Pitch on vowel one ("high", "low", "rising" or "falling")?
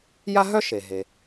high